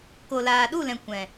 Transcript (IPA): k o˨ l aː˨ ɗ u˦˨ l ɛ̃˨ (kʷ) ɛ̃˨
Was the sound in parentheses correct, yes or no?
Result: yes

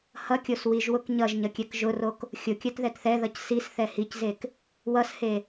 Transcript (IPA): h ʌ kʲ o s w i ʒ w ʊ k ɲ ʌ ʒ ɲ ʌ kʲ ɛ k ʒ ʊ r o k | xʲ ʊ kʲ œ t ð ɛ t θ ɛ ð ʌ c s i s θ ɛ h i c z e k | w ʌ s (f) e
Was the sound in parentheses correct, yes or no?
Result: no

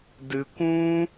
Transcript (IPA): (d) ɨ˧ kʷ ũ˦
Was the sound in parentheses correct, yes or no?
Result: yes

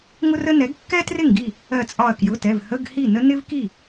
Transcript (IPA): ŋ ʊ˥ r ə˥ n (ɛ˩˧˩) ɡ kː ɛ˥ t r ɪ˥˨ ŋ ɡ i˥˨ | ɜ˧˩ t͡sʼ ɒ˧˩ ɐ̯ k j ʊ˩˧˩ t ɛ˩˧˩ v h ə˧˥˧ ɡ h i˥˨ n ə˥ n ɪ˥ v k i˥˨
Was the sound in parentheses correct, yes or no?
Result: no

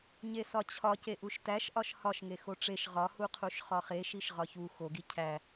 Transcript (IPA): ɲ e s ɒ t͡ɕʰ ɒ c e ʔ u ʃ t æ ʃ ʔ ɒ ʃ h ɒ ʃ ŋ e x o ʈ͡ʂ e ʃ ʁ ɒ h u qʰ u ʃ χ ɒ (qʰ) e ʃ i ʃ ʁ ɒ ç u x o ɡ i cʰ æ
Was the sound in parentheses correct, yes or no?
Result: no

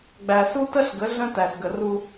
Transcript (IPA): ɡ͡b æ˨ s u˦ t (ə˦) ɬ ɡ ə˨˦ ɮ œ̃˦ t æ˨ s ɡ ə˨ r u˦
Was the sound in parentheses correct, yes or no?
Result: yes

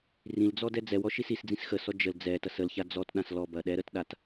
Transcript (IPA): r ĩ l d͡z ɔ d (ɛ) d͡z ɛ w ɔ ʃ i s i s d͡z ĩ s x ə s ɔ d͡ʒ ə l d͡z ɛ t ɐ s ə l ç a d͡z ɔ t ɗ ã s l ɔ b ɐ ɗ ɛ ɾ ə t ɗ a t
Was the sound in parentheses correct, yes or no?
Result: yes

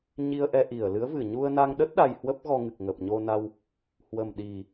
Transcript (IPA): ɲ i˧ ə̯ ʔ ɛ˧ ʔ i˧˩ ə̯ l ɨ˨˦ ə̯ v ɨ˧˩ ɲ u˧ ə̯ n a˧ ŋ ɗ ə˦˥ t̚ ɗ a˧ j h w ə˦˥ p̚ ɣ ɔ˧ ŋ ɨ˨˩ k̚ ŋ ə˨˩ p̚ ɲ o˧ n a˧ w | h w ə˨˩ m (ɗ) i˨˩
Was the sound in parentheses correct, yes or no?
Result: yes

